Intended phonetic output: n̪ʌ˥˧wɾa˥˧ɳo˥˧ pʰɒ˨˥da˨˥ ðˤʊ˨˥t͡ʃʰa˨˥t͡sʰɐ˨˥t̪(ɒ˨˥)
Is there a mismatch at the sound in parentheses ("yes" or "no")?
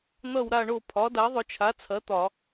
yes